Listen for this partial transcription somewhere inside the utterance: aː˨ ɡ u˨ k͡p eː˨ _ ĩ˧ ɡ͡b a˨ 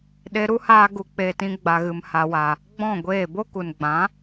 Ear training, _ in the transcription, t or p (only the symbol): t